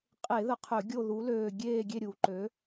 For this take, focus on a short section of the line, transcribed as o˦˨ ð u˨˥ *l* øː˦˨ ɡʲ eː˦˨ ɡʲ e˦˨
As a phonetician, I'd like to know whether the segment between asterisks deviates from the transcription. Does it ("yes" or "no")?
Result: no